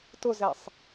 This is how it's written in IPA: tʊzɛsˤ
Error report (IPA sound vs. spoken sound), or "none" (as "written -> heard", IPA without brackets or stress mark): none